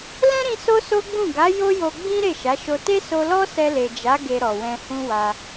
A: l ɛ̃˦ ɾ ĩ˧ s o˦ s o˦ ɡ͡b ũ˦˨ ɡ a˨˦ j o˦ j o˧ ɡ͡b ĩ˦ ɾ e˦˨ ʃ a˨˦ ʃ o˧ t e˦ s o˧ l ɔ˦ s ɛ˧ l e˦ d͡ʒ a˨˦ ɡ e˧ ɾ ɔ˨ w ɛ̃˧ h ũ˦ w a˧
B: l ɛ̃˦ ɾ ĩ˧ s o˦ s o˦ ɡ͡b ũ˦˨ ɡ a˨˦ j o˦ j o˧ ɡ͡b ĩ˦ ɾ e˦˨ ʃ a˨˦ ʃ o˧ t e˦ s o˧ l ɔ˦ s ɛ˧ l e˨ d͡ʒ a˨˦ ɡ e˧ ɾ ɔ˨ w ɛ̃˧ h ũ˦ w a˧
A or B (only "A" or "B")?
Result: B